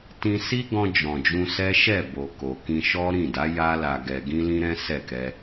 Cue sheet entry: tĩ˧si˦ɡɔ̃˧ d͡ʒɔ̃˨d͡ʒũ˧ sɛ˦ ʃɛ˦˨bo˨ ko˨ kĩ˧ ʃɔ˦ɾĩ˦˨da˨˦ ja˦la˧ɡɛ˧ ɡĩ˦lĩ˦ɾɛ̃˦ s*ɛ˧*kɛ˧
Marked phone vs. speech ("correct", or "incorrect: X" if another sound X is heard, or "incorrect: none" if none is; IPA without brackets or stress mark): incorrect: ɛ˦˨